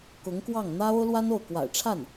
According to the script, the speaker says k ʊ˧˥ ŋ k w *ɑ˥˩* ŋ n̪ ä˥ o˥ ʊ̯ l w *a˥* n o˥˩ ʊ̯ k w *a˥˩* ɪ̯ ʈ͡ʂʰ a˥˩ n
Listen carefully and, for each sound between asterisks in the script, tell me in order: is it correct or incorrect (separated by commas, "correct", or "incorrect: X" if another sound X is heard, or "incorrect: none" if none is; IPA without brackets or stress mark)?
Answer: correct, correct, incorrect: a̰˨˩